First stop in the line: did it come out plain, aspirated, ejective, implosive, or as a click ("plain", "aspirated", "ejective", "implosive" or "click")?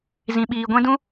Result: implosive